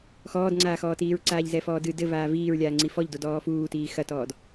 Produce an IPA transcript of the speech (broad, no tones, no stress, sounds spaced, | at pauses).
x ɔː d ŋ͡ǀ aː x ɔː t iː ɹ ǀ aː ʎ z ɛ f ɔː d ɨ d ɘ v aː v iː ɹ lʲ aː ŋ͡ǀ i f ɔ ʎ d o d ɔː f uː t iː x ɐ t ɔː d